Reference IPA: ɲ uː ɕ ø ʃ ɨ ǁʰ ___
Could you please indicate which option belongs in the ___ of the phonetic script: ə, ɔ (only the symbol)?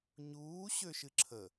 ə